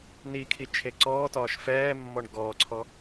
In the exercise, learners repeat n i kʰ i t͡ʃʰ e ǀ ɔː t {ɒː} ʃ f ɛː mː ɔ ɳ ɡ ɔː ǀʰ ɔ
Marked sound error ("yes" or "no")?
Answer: no